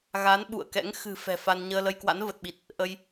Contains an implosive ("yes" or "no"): yes